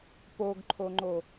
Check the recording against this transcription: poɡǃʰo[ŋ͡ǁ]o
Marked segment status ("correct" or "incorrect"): incorrect